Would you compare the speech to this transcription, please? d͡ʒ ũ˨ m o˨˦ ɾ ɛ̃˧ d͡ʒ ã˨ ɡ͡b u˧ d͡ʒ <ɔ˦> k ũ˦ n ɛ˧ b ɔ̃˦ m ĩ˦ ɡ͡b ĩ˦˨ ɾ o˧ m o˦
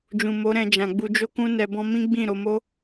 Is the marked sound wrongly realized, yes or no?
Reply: yes